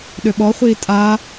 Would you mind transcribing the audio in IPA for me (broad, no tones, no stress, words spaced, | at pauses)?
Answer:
ɗøɓɔχʷiː tʼa